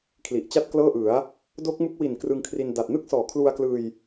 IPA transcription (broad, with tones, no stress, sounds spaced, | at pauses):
kʰ l i˨˩ ʔ t͡ɕ a˥˩ t̚ k l ɤː˥˩ ʔ ɯ˩˦ a̯ | d o˦˥ k̚ m u˦˥ k̚ w i˨˩ n k r ɯ˧ ŋ kʰ r i˧ n d a˨˩ t̚ n ɯ˦˥ k̚ s ɔː˩˦ kʰ l u˧ a̯ k l ɯː˧ j